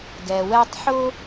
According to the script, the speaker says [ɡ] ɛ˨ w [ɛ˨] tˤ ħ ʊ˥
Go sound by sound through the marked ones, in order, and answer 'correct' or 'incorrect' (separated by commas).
correct, incorrect